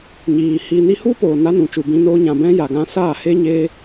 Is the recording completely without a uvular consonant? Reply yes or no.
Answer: yes